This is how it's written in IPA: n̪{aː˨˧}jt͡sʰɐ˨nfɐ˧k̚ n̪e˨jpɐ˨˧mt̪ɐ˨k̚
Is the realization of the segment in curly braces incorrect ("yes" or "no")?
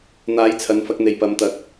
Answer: no